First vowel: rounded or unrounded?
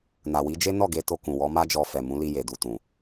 unrounded